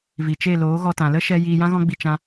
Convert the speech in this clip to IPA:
vi˨t͡ʃe˦˨ loː˨˦ɣɔ˧ tã˨lə˦ʃɛ˧ jiː˧jã˦ɣɔ̃˦ɡ͡bi˧ t͡ʃã˧

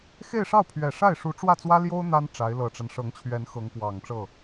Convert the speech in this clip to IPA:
xe˥˧ɪ̯ʂɑ˥˩ʊ̯pʰɥɛ˨˩ ʂa˥˩ɪ̯ʂu˧˥ʈ͡ʂwä˥˩t͡swä˥ ljo˥ʊ̯ n̪a˥n ʈ͡ʂa˧˥ɪ̯lɤ˨˩ʈ͡ʂa˦n ʂɤ˧˥ŋt͡ɕʰɥɛ˧˥n xɤ˧˥ŋkwɑ˨˩ŋʈ͡ʂɤ˥˩

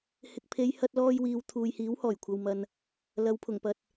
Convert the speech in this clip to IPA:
hɪ˨k̚pʰe˨˧j hɐ˧t̚lɔː˧jwiː˨w t̪ʰuː˨jhiː˨˥whɔː˨˩j kʷʰɐ˨wmɐ˨n | lɐ˨˧wpʰʊ˨˩ŋpɐ˨t̚

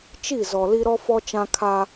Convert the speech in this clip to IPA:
t͡ʃi˦˨ zɔ˨li˦ ɾɔ˦fɔ˦t͡ʃã˦ kʰa˦

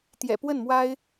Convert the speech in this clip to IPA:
t̪jɛ̰˨˩pwə˥˩nmwa˥ɪ̯

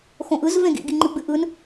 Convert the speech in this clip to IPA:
xõʔɯz vẽɡḭ ɡiŋ͡ǃɨɡ͡bɨʔɯn

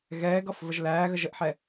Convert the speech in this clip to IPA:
ɣɛːɡʌfvəʒ læːɣə ʒəʔħɛ

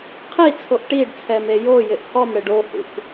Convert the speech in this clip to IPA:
qʰi t͡sʰoʔʈiɖt͡sʰɛm ejojɪʔ hɔmɽɪɖ ohṵk

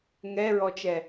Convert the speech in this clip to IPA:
ŋɛɹɔt͡ʃɛ

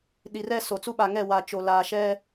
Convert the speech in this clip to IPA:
ɗi˨rɛ˦˨ so˨t͡su˦ɓa˨ŋɛ˦˨ wa˨t͡ʃo˨ laː˨ʃɛ˦

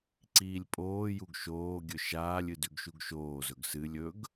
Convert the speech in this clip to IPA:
ǀiːlʲpʼoːjuɡ ʃoːɡʲɵ ʃaːlʲɨ dʉɡʃuɡʃoːzɵɡ sɨlʲ ɵɡ

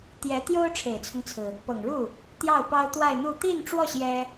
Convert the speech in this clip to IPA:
t̪jɛ˧˥t̪jo˥ʊ̯ ʈ͡ʂʰe˨˩ɪ̯t͡sʰʊ˦ŋt͡sʰɹ̩˩ | pɤ˨˩ŋɻu˥˩ | t̪jɑ˥˩ʊ̯pɑ˥ʊ̯t̪wa˥˧ɪ̯n̪u˥˧ t̪i˥˧nʈ͡ʂwɔ˥˩ ɕjɛ˥

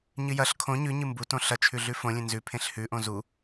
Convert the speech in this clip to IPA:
ɲɨjɐɬ kʰõ ɲʉɲɨ mbutõ ɬɐt͡ʃʰʉ ɮʉfõlʲẽ nzʉpʰẽɬ hʉʔõ zu

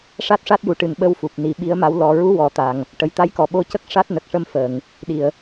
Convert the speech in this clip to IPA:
ʂa˦˥t̚ʂa˦˥t̚ju˨˩ ʈɨ˨˩nɓə˧w fu˨˩p̚ni˨˩˦ɓi˧˥ə̯ma˧˥w lɔ˨˩˨ɹu˧˥ wɔ˨˩˨t̪a˨˩ŋ | ʈə˨˩jt̪a˧˥jkɔ˨˩˨ɓo˧˥ cə˦˥k̚ ʂa˦˥t̚nə˨˩k̚ʂə˧m fə˨˩˨ŋ | ɗi˨˩˨ə̯

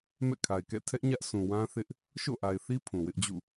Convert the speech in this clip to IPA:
mɛ̰˦˨kʰa˨ɪ̯kɛ̰˦˨ tʰɛ˦ʔ ɲä˦ʔsʰũ˨ wã˦θɪ˦ʔ | ʃo̰˦˨ʔa˨ɪ̯θi˦ pʰũ˨wɪ˦ʔd͡ʑṵ˦˨

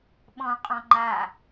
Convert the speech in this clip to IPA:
ɓɔ̃ qʼɔ̃ŋ͡ǃa

